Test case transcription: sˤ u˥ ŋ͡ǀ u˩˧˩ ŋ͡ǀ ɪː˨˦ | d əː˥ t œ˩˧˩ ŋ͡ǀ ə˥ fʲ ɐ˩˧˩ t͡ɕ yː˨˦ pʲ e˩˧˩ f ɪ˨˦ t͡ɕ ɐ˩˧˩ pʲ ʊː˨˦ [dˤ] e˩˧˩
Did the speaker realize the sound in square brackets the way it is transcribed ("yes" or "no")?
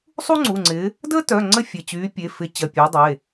yes